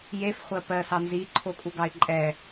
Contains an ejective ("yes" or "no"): yes